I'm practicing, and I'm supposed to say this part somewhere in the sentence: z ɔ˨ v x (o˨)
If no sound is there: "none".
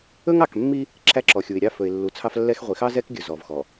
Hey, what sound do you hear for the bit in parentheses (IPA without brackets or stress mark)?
ɔ˨